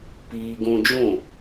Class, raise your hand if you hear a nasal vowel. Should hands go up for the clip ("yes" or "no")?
yes